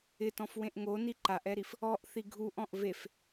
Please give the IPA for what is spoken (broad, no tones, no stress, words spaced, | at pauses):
ɪtɔ̃fwẽʔ ŋoni ǃaʔɛɾif | ɔʔθi ɡʱuʔɔ̃ʔ vef